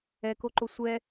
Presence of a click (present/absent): present